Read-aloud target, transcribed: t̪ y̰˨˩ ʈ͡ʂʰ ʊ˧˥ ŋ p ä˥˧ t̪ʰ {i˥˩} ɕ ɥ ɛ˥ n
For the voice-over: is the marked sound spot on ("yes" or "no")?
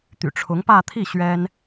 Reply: yes